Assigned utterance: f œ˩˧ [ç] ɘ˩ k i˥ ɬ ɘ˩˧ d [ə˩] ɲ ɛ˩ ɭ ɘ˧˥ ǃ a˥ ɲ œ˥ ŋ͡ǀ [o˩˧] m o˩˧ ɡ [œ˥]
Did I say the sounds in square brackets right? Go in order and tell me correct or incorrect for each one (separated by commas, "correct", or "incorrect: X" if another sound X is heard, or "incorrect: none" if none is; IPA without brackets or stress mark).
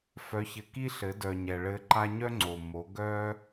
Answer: correct, incorrect: œ˩, incorrect: o˩, correct